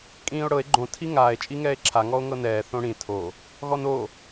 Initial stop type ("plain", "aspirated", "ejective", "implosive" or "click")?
ejective